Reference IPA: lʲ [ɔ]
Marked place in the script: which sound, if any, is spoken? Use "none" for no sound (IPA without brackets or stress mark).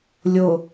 o